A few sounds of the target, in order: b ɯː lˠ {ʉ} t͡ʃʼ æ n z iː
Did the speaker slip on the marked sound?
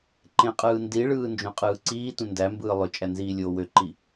yes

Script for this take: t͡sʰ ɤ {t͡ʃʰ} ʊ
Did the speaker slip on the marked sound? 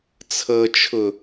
no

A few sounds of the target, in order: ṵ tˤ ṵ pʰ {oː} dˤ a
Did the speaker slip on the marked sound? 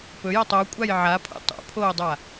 no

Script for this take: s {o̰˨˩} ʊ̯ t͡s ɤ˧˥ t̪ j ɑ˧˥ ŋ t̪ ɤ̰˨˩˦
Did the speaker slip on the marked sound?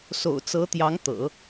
no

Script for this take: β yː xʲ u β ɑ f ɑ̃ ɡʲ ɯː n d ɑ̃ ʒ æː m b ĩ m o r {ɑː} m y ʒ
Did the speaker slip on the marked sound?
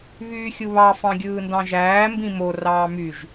no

